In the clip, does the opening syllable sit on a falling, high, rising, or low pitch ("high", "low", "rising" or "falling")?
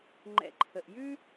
low